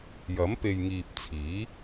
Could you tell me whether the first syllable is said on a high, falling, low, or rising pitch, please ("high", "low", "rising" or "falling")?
rising